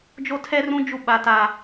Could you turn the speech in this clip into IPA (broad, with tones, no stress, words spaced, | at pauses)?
d͡ʒo˦tʰɛ˦rũ˦d͡ʒu˦˨ ɓa˦ta˦